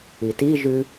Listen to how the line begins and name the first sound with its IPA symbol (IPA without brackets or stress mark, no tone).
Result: i